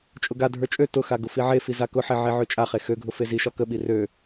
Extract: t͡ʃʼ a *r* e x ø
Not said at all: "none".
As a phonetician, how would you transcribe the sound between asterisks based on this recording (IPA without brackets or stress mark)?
χ